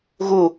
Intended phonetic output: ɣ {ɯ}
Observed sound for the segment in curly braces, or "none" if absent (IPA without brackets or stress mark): u